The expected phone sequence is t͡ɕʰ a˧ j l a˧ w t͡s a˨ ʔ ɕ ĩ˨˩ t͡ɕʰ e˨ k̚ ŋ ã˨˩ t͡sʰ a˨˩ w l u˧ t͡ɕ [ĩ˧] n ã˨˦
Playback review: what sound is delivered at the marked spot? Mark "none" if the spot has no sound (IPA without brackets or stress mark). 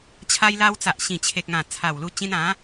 ĩ˧